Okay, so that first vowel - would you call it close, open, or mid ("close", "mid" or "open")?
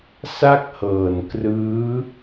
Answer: open